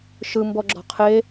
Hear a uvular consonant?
yes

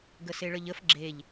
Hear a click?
yes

